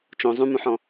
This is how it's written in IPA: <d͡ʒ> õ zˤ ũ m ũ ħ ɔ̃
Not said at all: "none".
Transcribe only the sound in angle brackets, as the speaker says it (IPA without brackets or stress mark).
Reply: t͡ʃ